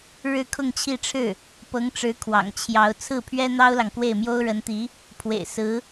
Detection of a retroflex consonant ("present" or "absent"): present